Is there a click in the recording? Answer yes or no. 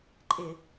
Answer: yes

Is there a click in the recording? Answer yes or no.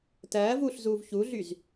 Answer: no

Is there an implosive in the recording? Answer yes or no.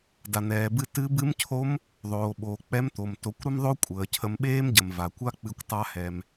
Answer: yes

